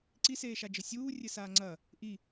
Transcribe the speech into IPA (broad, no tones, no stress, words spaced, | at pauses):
ǀiseːʃad͡ʒɘ sʲuːrʲɘ saːŋ͡ǀɐː | ʔi